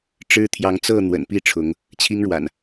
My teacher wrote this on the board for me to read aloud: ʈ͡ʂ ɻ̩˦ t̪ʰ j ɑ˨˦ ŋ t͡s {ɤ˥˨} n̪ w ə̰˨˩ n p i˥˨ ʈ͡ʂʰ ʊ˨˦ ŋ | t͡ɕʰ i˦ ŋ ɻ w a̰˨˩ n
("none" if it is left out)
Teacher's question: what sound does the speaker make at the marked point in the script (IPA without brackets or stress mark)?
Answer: ɤ˥˨